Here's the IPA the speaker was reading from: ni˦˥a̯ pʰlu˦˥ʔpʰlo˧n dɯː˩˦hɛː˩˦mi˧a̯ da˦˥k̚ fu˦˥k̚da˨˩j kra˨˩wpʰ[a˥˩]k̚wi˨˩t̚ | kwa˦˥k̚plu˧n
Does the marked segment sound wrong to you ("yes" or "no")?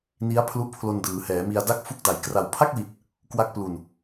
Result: no